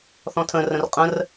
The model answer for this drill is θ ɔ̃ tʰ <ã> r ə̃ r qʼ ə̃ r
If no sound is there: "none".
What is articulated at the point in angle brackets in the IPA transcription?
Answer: ə̃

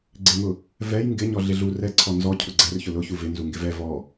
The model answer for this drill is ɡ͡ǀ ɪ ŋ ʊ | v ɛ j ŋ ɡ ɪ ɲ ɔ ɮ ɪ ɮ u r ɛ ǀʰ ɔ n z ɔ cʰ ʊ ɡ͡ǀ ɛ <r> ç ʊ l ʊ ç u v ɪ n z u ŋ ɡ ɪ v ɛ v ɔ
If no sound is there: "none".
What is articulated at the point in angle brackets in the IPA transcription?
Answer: r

